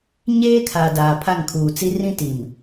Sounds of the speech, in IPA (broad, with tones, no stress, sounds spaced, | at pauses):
ɲ eː˦ kʰ a˨ d aː˨ pʰ a˦˨ ŋ kʰ uː˨ t͡s i˦ r ĩ˦ t i˨ m